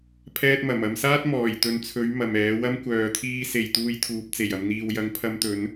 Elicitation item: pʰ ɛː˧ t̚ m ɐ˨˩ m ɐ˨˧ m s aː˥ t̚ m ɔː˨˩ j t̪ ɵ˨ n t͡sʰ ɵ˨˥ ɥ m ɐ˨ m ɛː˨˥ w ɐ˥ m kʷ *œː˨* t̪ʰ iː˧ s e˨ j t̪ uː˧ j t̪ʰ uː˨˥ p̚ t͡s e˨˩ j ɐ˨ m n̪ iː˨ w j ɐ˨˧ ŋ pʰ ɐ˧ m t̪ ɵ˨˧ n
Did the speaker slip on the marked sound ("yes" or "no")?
no